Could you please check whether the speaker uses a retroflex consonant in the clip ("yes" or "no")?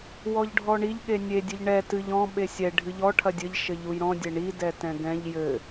yes